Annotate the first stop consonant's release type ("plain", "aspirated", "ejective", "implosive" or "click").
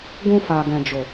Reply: plain